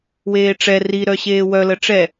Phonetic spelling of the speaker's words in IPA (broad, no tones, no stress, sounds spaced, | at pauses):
w eː ʈ͡ʂ ɛ r i ɾ œ ɕ eː w œ l ə ʈ͡ʂ ɛ